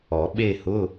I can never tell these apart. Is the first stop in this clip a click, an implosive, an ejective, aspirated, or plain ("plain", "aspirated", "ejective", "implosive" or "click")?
implosive